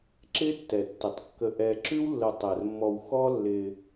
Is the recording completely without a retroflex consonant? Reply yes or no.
yes